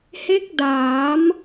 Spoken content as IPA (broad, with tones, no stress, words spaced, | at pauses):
he˦˥k̚ daː˩˦m